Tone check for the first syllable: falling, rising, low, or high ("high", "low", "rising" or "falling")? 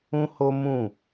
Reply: high